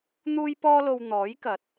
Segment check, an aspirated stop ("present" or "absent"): absent